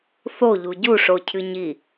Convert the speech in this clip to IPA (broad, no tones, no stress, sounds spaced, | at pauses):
θ o ʎ u ɟ u ʂ o cʰ ɨ ɲ i